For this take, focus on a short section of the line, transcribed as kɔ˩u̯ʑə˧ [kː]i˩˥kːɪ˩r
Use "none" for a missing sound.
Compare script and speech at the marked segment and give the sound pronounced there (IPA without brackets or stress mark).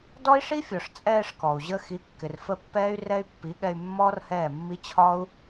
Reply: x